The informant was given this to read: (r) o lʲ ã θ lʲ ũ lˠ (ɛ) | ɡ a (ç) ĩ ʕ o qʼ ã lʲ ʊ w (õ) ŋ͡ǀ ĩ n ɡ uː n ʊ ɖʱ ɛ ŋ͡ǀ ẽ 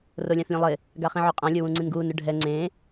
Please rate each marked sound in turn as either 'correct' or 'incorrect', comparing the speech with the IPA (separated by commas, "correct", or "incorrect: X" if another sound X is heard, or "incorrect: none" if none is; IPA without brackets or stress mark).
correct, incorrect: ɪ, incorrect: χ, incorrect: ũ